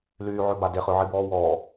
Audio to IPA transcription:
l yː ʕ ø b a d e χ ø ʕ i b ɔː w ɔː

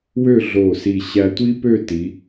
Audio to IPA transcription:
w ø˥˧ ɮ o˧˩ s i˧˩ ɕ æ˧ tʷ i˥ p ø˥˧ t i˩˧

